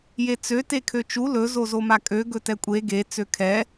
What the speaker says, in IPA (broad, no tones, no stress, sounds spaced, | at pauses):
j e t͡s ø t e kʰ ø t͡ʃ u l ɵ z o z o m a kʼ ø ɡ ɵ t ɛ kʷʼ e ɡ e t͡s ø kʰ ɛ